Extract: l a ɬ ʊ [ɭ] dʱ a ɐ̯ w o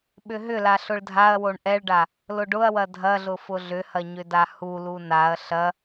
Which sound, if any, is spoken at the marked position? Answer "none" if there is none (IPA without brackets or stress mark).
ɭ